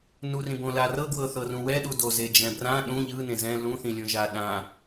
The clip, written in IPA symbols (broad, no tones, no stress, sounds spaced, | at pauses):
n u r ĩ b õ l a r ɤ ɡ w ɤ θ ɤ r ũ w ɛ ɗ u d o z e d͡ʒ ɛ̃ b r ã ɗ ũ ʎ ɯ n ẽ z ɛ̃ l ũ θ ĩ lʲ õ ʒ a ɗ ã